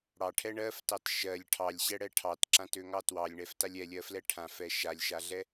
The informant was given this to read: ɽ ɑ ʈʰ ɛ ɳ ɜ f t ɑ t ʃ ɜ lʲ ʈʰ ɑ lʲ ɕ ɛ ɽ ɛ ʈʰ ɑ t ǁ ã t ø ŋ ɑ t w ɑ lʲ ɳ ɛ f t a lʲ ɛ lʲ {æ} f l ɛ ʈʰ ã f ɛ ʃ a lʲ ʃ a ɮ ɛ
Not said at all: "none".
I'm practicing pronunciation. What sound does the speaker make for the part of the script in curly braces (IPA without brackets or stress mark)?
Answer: ɜ